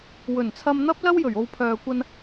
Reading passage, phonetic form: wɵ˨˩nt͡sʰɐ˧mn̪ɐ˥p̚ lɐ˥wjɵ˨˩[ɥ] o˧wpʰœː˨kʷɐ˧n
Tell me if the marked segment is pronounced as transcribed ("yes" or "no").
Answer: yes